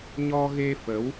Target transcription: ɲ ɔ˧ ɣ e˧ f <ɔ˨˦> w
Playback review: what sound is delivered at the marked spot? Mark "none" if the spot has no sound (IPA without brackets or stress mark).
ə˨˦